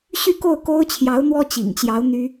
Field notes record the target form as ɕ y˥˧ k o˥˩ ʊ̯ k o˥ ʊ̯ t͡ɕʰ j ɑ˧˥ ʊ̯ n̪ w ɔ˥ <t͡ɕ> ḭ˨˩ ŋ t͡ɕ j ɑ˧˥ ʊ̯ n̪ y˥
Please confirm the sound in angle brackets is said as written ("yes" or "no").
yes